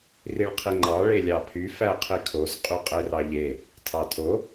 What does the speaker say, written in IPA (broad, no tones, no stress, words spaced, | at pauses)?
riɭqʰiŋ͡ǃɑ ɭelʲɑpʰy fæqʰikʰoz qʼyqʼerɑʎe | tʰɑtʰo